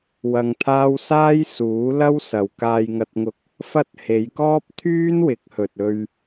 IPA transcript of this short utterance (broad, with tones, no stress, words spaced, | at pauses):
wɐ˧ŋt̪ʰaː˥w saː˥j suː˨˥lɐ˥w sɐ˨wkaː˧jŋɐ˧t̚ŋʊ˧k̚ | fɐ˥t̚ he˨˧jkɔː˥p̚ t̪ʰyː˥nwɪ˨˥k̚hɵ˨t̚ ɵ˧ɥ